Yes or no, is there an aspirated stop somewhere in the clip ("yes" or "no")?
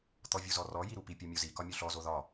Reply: no